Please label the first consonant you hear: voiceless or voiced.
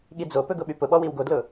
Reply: voiced